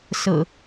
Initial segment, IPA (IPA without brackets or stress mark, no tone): s